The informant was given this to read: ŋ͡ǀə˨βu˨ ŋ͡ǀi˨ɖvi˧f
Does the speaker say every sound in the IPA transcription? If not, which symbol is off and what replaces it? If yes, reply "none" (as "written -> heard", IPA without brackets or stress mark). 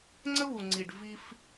ə˨ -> ə˦